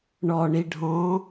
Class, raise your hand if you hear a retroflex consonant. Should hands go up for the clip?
yes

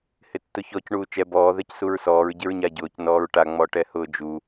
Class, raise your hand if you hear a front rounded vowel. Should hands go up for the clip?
no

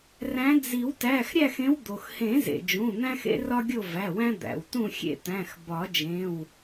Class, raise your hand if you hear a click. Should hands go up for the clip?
no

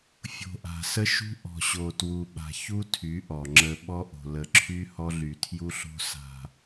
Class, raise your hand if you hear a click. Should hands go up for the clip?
yes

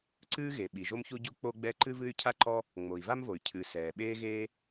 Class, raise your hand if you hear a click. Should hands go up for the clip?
yes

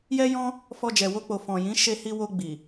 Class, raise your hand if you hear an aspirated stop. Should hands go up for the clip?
no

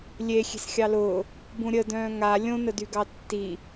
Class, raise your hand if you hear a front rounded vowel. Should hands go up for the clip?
yes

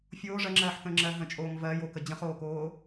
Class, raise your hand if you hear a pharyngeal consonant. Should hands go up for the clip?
yes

